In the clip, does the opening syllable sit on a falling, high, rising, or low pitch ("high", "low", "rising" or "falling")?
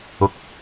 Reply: rising